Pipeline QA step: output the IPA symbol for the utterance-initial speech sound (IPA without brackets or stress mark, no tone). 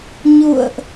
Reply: ɲ